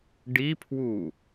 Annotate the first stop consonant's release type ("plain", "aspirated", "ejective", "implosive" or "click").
plain